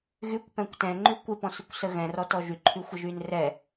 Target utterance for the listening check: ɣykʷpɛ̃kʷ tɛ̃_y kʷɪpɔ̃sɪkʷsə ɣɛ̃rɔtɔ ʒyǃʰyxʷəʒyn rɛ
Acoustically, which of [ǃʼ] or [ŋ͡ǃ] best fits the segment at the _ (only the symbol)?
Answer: ŋ͡ǃ